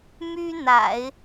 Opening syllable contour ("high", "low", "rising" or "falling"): high